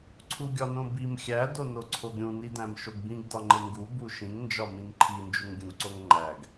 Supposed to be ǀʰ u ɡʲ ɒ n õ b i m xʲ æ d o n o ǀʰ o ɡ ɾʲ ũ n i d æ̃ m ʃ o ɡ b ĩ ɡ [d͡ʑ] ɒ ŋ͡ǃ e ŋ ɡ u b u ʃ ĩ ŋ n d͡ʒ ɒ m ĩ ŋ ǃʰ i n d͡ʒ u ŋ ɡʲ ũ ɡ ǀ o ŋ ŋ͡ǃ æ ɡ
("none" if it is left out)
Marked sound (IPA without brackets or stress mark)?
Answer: d